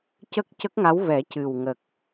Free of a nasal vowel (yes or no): yes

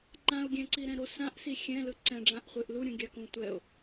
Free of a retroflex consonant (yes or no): no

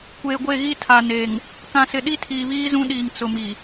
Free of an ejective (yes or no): yes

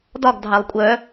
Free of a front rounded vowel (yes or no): no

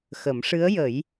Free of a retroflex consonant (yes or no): no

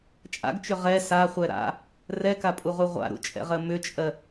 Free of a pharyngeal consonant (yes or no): yes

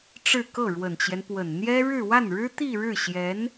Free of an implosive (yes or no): yes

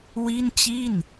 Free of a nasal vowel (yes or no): yes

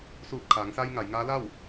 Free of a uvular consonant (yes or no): yes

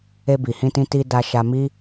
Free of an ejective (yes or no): yes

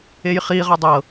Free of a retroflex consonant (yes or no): yes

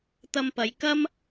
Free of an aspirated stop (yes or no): yes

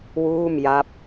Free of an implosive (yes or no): yes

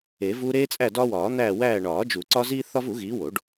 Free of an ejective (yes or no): no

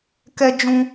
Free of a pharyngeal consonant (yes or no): yes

